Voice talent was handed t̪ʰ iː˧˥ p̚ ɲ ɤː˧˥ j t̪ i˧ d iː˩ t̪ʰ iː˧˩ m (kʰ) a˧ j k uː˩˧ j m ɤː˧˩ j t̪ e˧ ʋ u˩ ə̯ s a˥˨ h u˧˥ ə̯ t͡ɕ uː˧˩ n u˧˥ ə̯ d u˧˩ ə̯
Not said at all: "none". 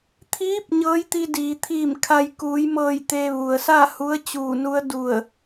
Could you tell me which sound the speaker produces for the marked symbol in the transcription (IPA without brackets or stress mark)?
kʰ